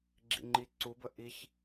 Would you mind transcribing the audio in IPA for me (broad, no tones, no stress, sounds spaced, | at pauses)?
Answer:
ɡ͡ǁ ḭ ŋ͡ǃ i ǀ u b ə ʔ i ç